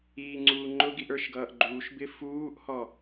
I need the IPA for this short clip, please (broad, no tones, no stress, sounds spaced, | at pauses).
iː ŋ͡ǀ uː ŋ͡ǃ ʊ ɡ i ʔ ə˞ ʃ ɡ ʌː ʔ ɡ͡ǃ uː ʃ b ɪ f uː ʔ h ɔ